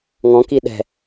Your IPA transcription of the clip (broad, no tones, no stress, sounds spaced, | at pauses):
ŋ ɔ̃ k i ɗ ɛ̤